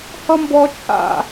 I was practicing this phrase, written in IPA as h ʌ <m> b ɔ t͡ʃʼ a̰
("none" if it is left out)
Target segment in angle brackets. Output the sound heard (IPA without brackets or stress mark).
m